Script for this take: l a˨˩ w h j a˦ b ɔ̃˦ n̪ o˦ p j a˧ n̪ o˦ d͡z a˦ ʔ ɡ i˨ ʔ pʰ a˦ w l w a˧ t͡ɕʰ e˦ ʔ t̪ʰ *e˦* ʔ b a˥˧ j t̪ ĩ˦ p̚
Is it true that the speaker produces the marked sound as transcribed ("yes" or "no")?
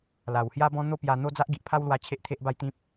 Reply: yes